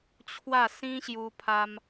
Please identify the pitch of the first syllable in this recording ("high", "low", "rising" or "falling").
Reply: falling